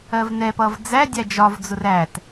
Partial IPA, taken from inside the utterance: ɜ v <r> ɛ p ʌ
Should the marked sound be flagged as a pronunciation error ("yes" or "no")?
yes